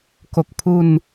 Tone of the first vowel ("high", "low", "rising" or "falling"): low